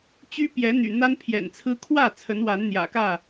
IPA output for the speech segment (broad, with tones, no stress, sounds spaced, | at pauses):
t͡ɕ y˦ p j ɛ˨˦ n̪ y̰˨˩ n̪ a˦ n pʰ j ɛ̰˨˩ n t͡sʰ ɹ̩˦ kʰ w ä˥˨ t͡sʰ ə˨˦ n w a˨˦ n n̪ j ä̰˨˩ k ä˥˨